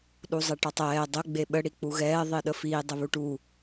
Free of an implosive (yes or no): no